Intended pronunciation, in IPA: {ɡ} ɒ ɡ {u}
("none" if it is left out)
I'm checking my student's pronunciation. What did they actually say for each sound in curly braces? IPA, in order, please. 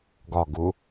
ɡ, u

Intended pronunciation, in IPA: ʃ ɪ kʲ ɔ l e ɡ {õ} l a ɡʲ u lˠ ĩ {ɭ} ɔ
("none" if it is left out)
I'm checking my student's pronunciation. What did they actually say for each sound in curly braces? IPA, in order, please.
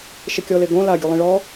õ, ɭ

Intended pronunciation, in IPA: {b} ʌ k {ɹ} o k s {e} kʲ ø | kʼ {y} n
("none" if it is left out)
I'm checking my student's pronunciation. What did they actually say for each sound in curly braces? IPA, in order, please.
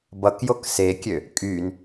b, j, e, y

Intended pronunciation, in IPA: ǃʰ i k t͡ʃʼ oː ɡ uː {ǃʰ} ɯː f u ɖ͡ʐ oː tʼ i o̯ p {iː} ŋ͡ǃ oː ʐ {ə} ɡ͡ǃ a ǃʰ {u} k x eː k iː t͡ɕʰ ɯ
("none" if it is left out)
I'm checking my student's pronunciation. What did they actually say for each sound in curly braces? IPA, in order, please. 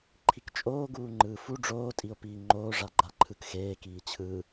ŋ͡ǃ, iː, a, ɯ

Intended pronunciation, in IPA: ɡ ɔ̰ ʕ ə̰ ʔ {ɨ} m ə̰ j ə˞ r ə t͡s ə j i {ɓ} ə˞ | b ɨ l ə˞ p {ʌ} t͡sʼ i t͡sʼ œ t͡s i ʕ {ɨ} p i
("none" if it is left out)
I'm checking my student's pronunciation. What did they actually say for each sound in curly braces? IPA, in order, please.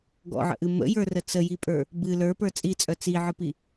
ɨ, pʼ, ə˞, ɨ

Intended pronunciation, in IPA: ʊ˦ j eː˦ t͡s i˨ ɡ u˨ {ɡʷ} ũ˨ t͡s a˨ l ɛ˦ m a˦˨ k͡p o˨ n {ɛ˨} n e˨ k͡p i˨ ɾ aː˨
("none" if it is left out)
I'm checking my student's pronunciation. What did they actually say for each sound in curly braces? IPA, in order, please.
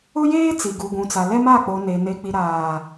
ɡʷ, e˨

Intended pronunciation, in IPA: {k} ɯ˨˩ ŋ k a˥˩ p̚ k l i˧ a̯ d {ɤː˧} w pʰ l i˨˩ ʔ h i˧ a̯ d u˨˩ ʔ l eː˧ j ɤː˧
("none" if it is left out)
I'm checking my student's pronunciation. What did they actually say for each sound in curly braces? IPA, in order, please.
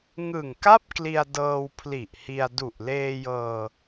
ŋ, ɤː˧

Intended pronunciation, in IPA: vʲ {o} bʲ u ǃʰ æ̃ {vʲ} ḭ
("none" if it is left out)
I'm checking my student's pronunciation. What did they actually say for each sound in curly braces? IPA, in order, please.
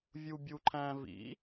u, v

